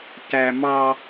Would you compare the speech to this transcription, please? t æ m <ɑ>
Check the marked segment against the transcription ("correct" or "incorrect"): correct